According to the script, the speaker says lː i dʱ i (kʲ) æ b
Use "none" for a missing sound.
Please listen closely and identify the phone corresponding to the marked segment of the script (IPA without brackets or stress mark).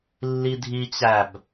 t͡ɕ